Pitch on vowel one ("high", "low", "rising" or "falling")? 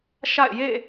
falling